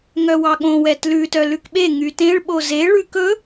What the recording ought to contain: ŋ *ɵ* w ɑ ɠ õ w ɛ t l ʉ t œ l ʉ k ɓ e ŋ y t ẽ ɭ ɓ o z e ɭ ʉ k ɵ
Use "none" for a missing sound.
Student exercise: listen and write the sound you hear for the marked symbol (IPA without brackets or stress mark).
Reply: œ